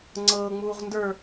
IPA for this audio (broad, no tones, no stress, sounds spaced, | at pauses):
ŋ͡ǀ ɤː ŋ͡m uː ʁ n d ə˞